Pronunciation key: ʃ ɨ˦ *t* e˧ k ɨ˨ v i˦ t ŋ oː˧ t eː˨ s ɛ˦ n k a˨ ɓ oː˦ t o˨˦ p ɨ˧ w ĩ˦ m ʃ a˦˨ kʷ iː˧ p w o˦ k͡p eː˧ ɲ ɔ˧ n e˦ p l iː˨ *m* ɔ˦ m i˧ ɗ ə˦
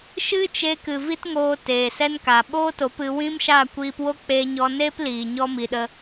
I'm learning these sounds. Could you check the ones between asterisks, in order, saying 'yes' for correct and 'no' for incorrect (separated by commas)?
no, no